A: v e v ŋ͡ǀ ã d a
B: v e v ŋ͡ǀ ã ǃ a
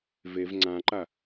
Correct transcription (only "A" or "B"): B